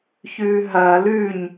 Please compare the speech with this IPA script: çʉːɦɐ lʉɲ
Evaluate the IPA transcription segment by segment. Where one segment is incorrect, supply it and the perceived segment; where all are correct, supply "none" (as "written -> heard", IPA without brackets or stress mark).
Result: none